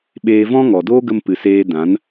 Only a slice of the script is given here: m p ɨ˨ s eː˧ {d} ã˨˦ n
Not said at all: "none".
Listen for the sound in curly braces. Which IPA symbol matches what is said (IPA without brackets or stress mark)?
d